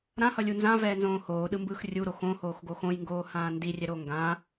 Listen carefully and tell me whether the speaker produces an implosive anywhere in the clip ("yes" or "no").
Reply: yes